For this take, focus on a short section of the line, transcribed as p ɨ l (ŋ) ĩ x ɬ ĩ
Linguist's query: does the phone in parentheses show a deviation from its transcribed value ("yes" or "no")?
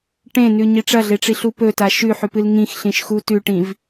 no